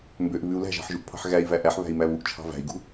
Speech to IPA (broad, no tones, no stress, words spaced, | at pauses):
mbøʔ βʉu̯ læ̤ʒɑ̤ħʒuʔpʰɑ̤ħ ɣæi̯væ ʔæħβæ̤i̯mæ βuʔt͡ʃʰɑ̤ væ̤i̯ɡṳ